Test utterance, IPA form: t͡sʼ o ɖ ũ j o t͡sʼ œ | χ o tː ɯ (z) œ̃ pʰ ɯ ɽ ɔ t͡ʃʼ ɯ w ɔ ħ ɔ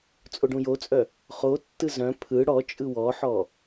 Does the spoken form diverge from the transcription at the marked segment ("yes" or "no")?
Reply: no